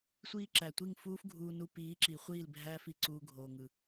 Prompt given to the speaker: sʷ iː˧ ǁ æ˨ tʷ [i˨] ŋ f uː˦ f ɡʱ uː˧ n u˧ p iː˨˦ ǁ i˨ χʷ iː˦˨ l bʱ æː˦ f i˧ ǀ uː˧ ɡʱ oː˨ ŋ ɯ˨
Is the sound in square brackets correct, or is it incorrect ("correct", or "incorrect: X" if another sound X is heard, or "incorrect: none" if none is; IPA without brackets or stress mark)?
incorrect: i˦˨